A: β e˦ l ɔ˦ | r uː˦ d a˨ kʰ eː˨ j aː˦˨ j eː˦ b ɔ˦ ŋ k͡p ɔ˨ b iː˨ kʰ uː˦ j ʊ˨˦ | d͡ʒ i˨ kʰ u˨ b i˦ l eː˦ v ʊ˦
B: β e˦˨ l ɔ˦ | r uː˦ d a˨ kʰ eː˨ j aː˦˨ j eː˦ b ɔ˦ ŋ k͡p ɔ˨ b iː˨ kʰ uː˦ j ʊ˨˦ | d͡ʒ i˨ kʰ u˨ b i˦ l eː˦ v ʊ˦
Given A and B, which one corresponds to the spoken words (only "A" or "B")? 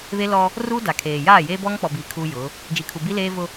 A